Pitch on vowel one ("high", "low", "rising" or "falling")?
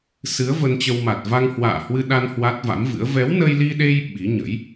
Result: rising